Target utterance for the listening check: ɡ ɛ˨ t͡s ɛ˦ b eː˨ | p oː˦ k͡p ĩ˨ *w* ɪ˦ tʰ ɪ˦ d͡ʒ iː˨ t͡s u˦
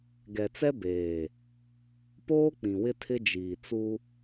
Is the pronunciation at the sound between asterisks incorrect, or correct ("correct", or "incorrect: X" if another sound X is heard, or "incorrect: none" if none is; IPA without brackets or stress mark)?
correct